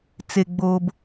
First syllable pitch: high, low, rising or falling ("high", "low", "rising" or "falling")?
low